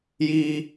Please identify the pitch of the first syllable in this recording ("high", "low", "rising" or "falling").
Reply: high